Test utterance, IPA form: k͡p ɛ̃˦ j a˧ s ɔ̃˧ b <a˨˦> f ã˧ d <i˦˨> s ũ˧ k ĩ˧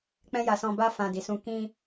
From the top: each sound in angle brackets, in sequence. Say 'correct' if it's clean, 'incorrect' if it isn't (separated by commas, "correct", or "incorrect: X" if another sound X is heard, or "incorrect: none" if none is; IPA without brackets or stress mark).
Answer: incorrect: a˦, incorrect: i˨